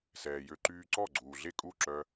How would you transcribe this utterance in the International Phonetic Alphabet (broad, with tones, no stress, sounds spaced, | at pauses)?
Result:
s ɛː˩ j ø˧ ǃ yː˧ ǀ ɔ˥˩ ɡ͡ǀ uː˩ ɮ e˥˩ kʼ u˥˩ ǁ œ˧